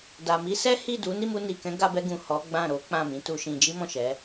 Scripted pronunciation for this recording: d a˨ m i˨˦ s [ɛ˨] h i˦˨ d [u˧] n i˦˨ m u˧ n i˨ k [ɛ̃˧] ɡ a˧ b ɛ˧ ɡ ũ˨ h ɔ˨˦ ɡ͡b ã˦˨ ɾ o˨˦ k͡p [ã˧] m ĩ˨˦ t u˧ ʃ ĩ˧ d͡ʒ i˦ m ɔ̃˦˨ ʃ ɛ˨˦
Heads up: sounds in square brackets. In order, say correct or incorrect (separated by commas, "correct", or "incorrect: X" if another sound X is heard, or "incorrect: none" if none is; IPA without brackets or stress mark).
incorrect: ɛ˦, incorrect: u˨˦, incorrect: ɛ̃˨˦, incorrect: ã˦˨